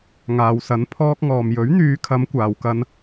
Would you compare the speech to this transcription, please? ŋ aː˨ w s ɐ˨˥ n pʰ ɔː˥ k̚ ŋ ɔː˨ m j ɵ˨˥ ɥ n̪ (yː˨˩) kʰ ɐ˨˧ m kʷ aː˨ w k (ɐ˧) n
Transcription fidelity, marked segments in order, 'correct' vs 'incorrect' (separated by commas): incorrect, correct